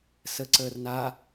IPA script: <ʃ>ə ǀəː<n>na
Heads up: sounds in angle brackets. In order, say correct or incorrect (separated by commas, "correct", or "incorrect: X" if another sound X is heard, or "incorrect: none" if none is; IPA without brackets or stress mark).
incorrect: s, incorrect: r